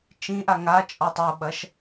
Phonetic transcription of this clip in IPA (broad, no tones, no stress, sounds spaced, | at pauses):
t͡ʃ ĩ ʔ a ŋ a t͡ʃʼ ɔ tˤ o ɓ ɐ ʃ